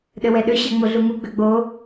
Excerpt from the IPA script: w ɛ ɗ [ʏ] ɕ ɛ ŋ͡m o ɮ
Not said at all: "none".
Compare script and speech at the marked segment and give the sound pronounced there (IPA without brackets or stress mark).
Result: ʏ